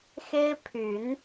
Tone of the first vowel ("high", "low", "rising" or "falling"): high